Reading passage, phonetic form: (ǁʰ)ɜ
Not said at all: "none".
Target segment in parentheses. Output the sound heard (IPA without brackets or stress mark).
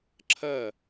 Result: ǁʰ